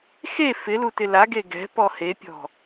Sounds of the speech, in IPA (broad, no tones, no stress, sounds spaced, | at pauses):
x e f ɪ l u t ɪ l a ɡ e ɡ ɛ̤ p ɔ h e pʲ ɔ̤